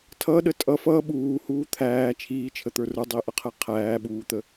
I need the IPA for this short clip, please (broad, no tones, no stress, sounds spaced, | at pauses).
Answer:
tʰ ʌ ɗ ə tʼ ʌ f ʌ ɓ uː h uː t̪ʰ æː t͡ʃʰ iː t͡ʃʰ ə t̪ ə˞ r ə˞ dˤ i ʔ ʌ qʰ ɛ qʰ æː ɓ uː t̪ ə